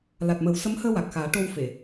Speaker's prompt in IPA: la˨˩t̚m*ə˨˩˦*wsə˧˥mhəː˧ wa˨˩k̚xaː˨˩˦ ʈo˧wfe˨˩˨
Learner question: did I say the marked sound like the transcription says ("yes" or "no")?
yes